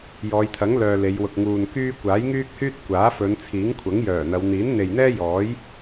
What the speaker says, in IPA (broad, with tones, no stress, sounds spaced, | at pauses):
j ɔː˨˧ j t̪ʰ ɐ˨˥ ŋ l œː˧ l e˨˧ j w ʊ˨ k̚ ŋ uː˨ n k yː˥ kʷ aː˨˥ j ŋ yː˥ k̚ h yː˥ t̚ kʷ aː˨˥ f ɵ˨˧ n t͡sʰ iː˨˥ ŋ kʷʰ ɐ˨˥ ŋ j œː˨˩ n̪ ɐ˨˧ w n̪ iː˨˥ n n̪ e˨ j n̪ ɛː˥ j ɔː˨˥ j